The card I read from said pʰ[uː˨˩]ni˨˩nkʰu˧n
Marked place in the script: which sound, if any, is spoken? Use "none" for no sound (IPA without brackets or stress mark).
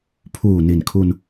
uː˨˩